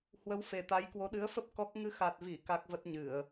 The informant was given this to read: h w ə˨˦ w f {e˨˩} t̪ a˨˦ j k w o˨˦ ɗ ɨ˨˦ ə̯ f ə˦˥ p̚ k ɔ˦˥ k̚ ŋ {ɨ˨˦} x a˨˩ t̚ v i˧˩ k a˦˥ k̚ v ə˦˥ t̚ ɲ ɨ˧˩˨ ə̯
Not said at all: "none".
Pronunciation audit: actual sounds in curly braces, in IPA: e˨˩, ɨ˨˦

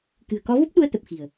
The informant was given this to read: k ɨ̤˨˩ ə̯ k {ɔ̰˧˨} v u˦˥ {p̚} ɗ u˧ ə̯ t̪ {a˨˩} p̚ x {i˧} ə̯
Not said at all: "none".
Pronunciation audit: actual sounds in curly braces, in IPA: ɔ˨˦, p̚, ə˨˩, i̤˨˩

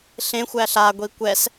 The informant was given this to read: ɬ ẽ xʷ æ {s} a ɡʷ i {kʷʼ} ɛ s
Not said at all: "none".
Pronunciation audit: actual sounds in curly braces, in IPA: ɬ, kʷ

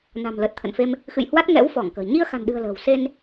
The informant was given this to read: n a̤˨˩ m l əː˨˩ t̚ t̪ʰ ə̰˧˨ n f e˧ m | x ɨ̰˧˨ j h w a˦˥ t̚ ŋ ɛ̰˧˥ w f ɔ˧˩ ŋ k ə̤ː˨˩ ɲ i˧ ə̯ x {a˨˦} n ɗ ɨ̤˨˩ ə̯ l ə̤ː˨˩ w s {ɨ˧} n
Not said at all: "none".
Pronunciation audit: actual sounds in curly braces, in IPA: a̤˨˩, e˧

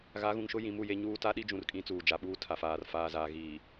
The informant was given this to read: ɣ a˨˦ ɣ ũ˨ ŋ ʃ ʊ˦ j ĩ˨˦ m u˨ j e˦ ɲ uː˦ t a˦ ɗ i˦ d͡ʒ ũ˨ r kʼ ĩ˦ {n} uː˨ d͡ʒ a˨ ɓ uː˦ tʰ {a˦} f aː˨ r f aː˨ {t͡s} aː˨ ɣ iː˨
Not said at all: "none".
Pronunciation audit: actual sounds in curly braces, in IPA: t͡s, a˨, z

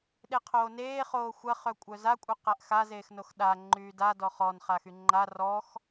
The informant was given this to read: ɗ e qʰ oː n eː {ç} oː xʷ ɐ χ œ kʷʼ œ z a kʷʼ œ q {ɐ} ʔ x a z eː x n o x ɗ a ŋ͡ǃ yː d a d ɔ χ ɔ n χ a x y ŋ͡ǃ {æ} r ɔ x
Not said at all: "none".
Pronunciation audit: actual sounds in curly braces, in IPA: χ, a, a

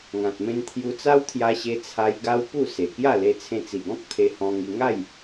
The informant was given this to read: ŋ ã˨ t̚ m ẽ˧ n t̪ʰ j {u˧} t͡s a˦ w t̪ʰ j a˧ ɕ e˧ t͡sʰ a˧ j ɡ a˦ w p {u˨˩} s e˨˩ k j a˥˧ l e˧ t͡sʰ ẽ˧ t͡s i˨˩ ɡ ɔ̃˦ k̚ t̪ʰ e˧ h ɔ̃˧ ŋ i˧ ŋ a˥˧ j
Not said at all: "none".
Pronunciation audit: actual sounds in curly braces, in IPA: u˧, u˥˧

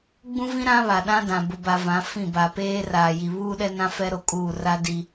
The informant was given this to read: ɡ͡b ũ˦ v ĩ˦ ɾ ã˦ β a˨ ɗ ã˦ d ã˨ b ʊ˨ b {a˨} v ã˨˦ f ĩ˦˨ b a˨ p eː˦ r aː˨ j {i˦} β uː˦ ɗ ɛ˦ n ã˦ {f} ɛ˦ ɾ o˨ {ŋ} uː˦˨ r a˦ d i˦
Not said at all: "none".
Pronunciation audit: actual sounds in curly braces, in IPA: a˨, i˨, f, kʼ

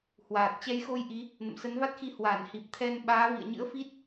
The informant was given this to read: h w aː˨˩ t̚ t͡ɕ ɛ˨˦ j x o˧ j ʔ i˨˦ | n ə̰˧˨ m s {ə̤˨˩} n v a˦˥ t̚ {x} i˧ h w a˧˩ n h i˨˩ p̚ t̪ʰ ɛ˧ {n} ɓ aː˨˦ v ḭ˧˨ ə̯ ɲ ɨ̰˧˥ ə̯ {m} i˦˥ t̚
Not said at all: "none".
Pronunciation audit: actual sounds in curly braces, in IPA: ə˨˦, x, n, f

